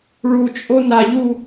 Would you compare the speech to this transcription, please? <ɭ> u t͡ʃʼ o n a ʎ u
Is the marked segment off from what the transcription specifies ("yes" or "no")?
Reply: no